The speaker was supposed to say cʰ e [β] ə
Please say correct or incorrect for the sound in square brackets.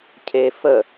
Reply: incorrect